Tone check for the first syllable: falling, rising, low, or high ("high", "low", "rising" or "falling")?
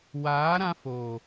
rising